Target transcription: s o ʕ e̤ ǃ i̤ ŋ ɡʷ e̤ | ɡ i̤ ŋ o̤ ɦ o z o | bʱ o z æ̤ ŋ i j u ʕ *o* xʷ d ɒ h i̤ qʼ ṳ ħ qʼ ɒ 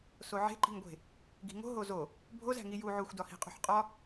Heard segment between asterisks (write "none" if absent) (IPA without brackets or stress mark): o